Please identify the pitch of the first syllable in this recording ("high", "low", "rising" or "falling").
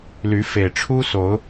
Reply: rising